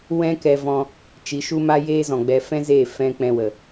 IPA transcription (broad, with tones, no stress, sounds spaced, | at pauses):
w ɛ̃˦ k ɛ˧ v ɔ̃˧ | t͡ʃ i˨˦ ʃ u˦ m a˦ j eː˦ z ɔ̃˨ ɡ͡b ɛ˧ f ɛ̃˦ z eː˦˨ f ɛ̃˦ k͡p ɛ̃˧ w ə˨